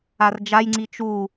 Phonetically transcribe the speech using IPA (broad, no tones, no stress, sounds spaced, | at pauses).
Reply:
a r d͡ʒ a j ŋ͡ǀ i t͡ʃ u